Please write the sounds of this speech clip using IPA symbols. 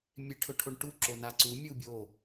mʲ e ʈʰ ɵ ʈʰ o ɳ ʈ u ǁ o n a ǀ u mʲ u bʲ o

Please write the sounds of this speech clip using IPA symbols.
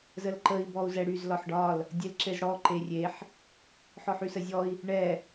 z ə l ǃ ə i̯ b ɔ u̯ z ɛ ɽ y z l ɒ ħ ɖ ɒ l | dʲ e l ǁ e z ɽ ɔ ǃ e rʲ e ħ | ħ ɔ ħ y s ə zʲ ɔ i̯ | ɳ ɛ

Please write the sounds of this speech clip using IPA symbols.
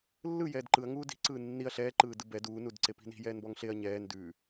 lː ɯ j ɛː d ǃ ɯ ɐ̯ ŋ uː d i̤ ǀ ɯː nː i ɐ̯ ɬ ɛː ǃ ɯː d ɯ b ɛ d uː n u d ǀ e p i̤ n i̤ j ɛː n b ɔ ŋ ɬ e ɐ̯ ɲ ɛː n d ʉ

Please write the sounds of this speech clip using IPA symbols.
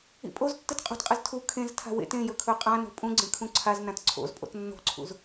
ḭ pʼ o z tː ɨ t qʼ o̤ t qʼ ɨ z tʰ u kʰ ẽ z tʰ a̤ w ḛ t ẽ j ɵ kʰ ɵ qʼ ã n o̤ pʼ ũ ɡ͡ǀ ẽ kʰ ũ ǀʰ a z n ã t ǀʰ o̰ z pʼ o̰ t nː o̤ ǀʰ ṵ z

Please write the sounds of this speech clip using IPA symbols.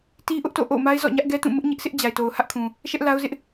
t i˦ ʔ ʊ˦ ʔ t o̰˦˨ ʔ o̰˦˨ ʊ̯ m a˦ ɪ̯ z ɔ̰˦˨ ɲ ä˦ ʔ ɡ ɛ˦ t ũ˦˨ m ʊ˦ ʔ ɲ ɪ˦ ʔ s ɪ˦ ʔ d͡ʑ a˨ ɪ̯ t o˨ ʊ̯ h ä˦ ʔ kʰ ũ˨ | ʃ ɛ˦ ʔ l a˦ ʊ̯ z ɪ˦ ʔ

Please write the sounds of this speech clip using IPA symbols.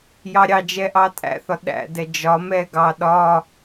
j ɑ ɾʲ ɑ d͡ʒ ɛ ʔ ɑ tʼ æ̰ θ ɒ ɗ æ̰ d ɛ d͡ʒ ɒ m ɛ ɡ ɑ ɗ ɒ

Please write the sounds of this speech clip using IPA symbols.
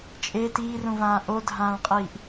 t͡ʃʼ e t iː r ũ v ãː ʔ o dʱ ãː ɭ qʼ iː ʔ

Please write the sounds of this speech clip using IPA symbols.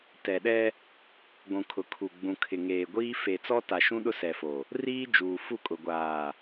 t ɛ˨ ɗ ɛ˦ | ɡʷ ũ˨ kʰ ʊ˨ kʰ u˨ ɡ͡b ũ˨ kʰ ɪ˨ ŋ eː˨ ɡʷ iː˦ f e˨ t͡s ɔ˦ t a˨ ʃ ũ˦ ɗ ʊ˦ s ɛ˨ f o˨ | r iː˦ d͡ʒ uː˨ f u˦˨ kʼ ʊ˨ ɡʷ aː˨

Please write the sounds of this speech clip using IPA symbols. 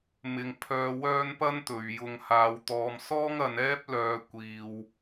m ɪ˨ ŋ pʰ œː˧ w œː˥ n p ɐ˥ n t̪ ɵ˨ ɥ j ʊ˨ ŋ h aː˧ w t̪ ɔː˧ m s ɔː˥ ŋ ɐ˨˧ n ɛː˥ p̚ l œː˧ kʷ iː˨ w

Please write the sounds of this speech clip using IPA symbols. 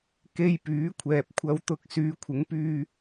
k e˧ j p yː˨˥ kʷʰ ɛː˨ p̚ kʷʰ ɐ˧ w t̪ ʊ˧ k̚ s yː˨˧ kʷʰ ɪ˨˥ ŋ p yː˧

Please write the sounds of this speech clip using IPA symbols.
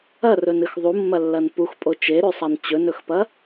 ɐ r ɵ n ɨ x ðˤ u mː ɐ lː ɐ n p u x pʼ o t͡ʃ e ɾ ʉ sˤ a n t͡ɕ ɵ n ɵ x p ɐ

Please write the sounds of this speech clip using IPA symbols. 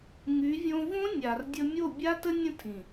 ŋ y˨˦ vʲ õ˧ v õ˦ nʲ a˨ r dʲ ə˧ mʲ o˦˨ bʲ a˦ t ə˦ nʲ ə̃˦ tʰ ĩ˨

